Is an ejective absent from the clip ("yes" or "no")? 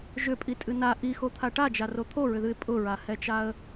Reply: no